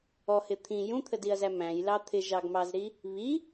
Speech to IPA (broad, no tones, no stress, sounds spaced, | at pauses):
ɔ h ɪ t̪ʰ ĩ j ũ t̪ʰ ə d i ɐ̯ z æ m æ̃ j l ɑ t̪ʰ ɪ ʒ ɑ ɡ m ɑ z ɾ i | β i